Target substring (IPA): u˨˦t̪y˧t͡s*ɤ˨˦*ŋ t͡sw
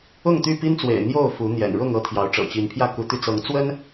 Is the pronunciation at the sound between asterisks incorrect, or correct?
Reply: correct